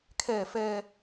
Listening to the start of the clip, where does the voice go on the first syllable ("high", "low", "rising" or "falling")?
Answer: low